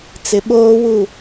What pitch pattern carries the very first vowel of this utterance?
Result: low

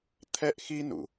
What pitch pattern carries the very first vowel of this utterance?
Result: high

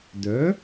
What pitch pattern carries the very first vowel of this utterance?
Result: rising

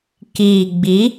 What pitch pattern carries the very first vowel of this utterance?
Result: low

